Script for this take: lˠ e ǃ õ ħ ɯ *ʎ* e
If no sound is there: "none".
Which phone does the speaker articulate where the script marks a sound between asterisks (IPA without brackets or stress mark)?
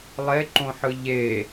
ʎ